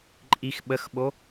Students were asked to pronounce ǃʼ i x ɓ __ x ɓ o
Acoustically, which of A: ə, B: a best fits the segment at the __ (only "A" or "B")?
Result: A